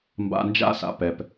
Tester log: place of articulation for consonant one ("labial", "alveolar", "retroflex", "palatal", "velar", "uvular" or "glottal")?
labial